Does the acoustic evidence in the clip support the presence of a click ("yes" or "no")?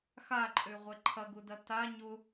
yes